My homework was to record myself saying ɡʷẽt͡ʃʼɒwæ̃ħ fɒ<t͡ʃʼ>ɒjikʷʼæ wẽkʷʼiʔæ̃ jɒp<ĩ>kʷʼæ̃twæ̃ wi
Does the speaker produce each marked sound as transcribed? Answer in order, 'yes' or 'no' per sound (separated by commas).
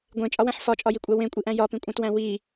yes, yes